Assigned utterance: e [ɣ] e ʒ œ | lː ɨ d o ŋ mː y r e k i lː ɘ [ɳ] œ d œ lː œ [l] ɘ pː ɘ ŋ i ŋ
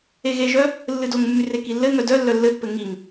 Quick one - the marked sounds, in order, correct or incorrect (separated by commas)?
correct, incorrect, incorrect